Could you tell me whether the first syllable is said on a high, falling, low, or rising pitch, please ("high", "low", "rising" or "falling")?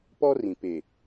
high